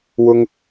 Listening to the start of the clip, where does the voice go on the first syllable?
high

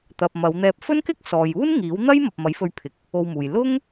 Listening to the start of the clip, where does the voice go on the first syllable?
low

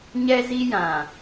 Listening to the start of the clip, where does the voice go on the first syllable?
high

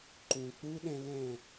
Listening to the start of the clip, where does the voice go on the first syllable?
low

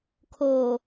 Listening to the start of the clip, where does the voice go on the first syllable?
low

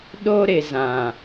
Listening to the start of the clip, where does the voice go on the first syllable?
high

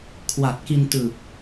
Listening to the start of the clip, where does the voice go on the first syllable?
low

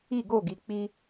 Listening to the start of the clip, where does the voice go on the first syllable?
falling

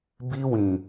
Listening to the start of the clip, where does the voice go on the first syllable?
high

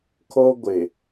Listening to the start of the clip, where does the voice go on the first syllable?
high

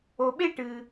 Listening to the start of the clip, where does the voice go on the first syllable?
low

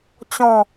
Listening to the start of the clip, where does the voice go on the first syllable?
falling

